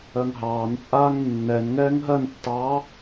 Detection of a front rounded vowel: absent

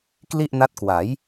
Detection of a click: absent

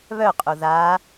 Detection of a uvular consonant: present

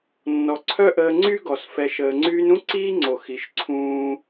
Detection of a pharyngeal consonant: absent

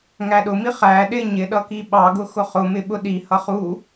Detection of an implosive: present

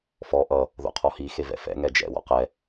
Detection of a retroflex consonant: absent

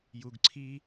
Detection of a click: present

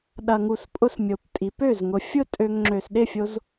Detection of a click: present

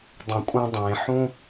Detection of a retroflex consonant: absent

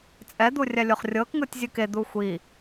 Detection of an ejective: present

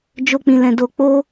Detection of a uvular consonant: absent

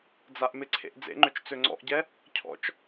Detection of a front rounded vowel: present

